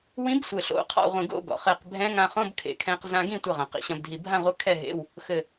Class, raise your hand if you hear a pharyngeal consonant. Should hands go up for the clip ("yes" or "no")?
no